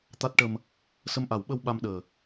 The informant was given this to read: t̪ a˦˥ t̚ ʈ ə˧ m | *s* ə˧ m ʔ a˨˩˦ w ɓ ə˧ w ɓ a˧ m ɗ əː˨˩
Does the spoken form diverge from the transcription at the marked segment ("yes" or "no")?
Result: no